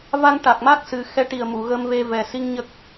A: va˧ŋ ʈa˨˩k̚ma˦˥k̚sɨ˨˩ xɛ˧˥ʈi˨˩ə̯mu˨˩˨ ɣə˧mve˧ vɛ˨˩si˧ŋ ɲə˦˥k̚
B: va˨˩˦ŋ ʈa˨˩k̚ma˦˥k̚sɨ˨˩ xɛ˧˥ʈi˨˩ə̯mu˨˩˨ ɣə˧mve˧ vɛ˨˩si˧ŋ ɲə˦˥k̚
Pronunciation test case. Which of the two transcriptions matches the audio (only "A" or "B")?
A